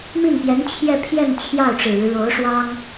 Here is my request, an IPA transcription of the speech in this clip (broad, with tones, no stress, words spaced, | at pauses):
mi˥˩npjɛ˧˥n t͡ɕʰjɛ˥˧pʰjɛ˥˧n t͡ɕʰjɑ˥˩ʊ̯ʈ͡ʂɻ̩˨˩ɻɻ̩˦ ɻo˧˥ʊ̯ʂwɑ˥ŋ